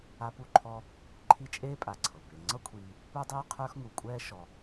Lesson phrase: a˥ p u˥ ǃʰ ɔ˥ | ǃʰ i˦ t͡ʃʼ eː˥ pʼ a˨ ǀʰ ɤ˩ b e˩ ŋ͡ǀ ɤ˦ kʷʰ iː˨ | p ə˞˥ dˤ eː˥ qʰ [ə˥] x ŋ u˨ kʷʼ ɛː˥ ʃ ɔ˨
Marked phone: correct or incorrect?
incorrect: ə˞˥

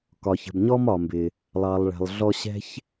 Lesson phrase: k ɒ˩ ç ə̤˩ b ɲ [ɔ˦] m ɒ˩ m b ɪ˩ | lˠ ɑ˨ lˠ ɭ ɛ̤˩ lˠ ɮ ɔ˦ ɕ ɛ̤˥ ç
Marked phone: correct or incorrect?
incorrect: ɔ˥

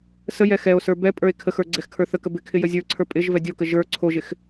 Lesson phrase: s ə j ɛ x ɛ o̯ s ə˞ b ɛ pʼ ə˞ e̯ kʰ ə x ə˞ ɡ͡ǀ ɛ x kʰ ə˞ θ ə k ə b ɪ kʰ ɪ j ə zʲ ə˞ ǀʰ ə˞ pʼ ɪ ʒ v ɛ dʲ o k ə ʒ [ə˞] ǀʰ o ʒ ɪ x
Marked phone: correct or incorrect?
correct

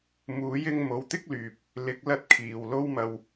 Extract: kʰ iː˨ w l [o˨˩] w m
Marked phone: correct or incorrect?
incorrect: o˧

